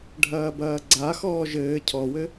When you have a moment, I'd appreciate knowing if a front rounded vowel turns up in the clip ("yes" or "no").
no